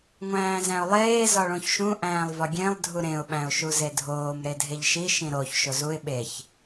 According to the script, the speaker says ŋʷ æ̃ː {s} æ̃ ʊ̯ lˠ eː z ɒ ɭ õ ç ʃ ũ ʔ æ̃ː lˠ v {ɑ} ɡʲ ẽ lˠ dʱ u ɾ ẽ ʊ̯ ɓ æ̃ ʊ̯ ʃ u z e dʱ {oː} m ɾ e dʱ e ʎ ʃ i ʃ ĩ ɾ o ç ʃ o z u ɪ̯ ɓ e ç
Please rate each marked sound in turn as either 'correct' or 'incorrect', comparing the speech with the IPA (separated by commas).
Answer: incorrect, incorrect, correct